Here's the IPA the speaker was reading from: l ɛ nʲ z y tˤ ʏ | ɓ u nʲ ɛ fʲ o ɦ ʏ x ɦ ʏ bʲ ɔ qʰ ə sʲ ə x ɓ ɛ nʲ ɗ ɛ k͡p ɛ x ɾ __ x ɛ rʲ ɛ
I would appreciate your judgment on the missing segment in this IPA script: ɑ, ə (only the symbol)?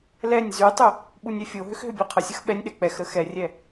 ə